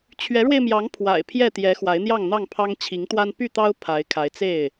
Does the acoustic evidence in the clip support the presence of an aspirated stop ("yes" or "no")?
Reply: yes